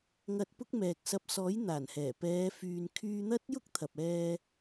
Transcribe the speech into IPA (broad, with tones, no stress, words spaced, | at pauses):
ŋɐ˧t̚ pʊ˥k̚mɛː˨k̚sɐ˧p̚ sɔː˨˥jn̪aː˨˩nhɛː˨˩ pɛː˨˧fyː˨n kʰyː˧n̪ɐ˥t̚ jʊ˥k̚t̪ʰɐ˨p̚ ɛː˧